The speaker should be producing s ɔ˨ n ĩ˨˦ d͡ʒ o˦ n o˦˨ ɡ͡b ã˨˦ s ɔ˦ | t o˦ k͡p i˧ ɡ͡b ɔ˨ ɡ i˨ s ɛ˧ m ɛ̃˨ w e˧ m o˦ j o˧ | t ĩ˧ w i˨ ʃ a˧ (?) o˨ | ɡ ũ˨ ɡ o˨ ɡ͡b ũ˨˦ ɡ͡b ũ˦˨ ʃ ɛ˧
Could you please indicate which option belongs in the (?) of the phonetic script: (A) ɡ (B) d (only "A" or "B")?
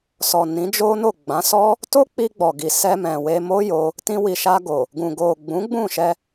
A